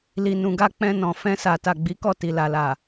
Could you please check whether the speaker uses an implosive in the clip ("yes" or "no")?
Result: no